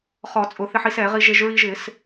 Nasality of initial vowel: oral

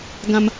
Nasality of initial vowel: nasal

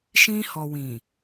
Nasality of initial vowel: nasal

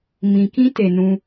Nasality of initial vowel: nasal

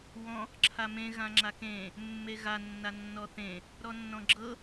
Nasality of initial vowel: nasal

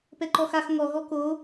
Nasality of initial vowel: oral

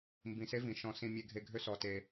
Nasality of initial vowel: nasal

